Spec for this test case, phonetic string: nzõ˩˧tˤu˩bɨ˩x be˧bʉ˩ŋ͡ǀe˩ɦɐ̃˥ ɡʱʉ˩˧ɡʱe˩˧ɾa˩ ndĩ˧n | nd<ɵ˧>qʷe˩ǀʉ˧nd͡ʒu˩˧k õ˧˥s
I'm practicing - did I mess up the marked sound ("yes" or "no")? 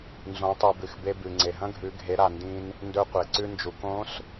no